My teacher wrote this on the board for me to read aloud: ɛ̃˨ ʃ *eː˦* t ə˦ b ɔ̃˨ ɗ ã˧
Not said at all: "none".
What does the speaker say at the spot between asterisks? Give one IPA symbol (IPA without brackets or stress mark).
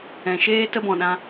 eː˦